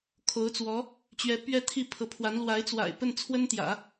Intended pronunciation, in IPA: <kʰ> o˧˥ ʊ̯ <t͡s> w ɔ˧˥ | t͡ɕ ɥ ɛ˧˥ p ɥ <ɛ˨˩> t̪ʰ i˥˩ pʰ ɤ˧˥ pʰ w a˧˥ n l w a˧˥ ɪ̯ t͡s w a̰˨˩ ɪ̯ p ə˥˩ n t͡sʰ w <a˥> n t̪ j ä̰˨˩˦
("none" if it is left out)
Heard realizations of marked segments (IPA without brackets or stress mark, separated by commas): kʰ, t͡s, ɛ˥˧, ə˥